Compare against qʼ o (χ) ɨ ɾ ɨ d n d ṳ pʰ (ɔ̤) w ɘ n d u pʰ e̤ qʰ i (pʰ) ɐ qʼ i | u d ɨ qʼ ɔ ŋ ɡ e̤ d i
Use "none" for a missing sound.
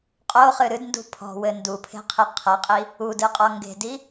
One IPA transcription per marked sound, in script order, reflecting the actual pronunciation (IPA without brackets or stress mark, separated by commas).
χ, ɔ̤, qʰ